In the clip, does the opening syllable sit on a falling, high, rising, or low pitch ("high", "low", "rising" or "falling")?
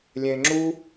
low